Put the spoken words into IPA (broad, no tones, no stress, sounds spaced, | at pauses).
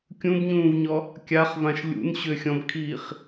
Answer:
kʲ ũ b ɲ ũː v ɲ ɔ | kʲ a χ v ã ʃ lʲ ṵ n ɕ ʏ xʲ ɔ̃ b kʰ iː χ